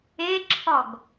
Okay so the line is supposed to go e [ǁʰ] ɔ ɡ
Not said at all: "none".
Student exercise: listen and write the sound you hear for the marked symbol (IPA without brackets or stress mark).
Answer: ǁʰ